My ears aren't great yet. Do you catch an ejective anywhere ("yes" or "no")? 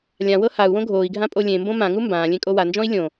yes